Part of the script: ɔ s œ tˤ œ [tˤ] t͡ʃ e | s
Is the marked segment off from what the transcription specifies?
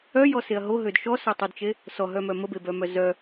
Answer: yes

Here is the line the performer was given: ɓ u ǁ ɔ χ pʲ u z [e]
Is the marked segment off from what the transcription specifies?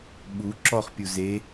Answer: no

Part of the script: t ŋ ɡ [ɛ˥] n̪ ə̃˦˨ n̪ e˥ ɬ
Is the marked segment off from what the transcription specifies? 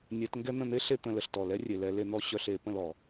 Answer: no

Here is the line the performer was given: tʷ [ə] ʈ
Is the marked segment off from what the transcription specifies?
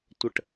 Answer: no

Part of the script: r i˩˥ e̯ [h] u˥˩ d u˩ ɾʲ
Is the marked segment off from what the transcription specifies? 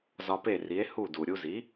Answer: no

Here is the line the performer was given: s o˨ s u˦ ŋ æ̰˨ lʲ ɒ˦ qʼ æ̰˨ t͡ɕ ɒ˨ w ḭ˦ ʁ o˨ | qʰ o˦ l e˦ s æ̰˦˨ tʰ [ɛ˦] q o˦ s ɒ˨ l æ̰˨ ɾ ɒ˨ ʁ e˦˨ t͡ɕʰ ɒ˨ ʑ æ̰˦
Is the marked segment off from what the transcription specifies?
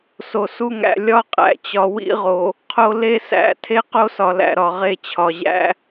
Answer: yes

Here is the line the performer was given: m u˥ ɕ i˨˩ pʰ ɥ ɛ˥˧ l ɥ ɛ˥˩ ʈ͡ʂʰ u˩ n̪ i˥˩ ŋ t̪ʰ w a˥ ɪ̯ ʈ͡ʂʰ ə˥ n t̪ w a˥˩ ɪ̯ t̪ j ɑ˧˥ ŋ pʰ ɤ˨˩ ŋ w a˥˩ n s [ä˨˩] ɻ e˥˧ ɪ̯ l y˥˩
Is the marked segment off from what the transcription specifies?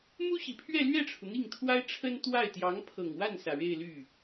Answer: no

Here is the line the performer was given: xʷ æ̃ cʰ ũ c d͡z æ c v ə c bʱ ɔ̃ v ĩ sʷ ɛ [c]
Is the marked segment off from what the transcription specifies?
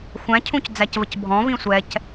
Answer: no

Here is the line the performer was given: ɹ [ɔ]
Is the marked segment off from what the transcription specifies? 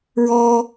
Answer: no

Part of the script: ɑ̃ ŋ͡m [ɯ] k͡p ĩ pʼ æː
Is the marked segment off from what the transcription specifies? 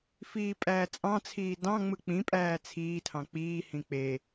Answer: no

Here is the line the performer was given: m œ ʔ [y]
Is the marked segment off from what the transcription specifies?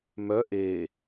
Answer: yes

